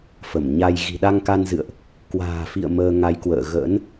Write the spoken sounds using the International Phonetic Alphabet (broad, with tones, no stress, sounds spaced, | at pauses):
f ə˧˩ m ɲ a˧ j ɣ i̤˨˩ ɗ a˧ ŋ k a˧ n z ɨ̰˧˨ ə̯ ʔ | k w a̤ː˨˩ f ḭ˧˨ ə̯ m əː˧ ŋ a˨˦ j k w ə̰ː˧˨ ɣ ə̰ː˧˥ n